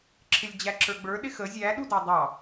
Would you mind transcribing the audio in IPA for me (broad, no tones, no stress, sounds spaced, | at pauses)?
ǁʰ ɪ lʲ d͡ʑ æ ǁ ə˞ ɡ͡b ə˞ ɗ ɪ x ə zʲ æ ɗ u d ɑ dˤ ɑ